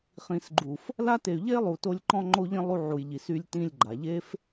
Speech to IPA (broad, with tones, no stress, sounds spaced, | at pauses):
χ ĩ˨ s ɡ͡ǃ u˨ f | l a˦ t e˨ y̯ ʎ e˦ lˠ u˨ t o˧ lʲ ǃ ɔ̃˧ ŋ͡ǃ o˧ ʎ ĩ˧ lˠ u˧ ʕ u˨ j ʎ i˨ s y˧ lʲ t ĩ˧ lʲ ɡ͡ǃ a˨ ʎ e˦ f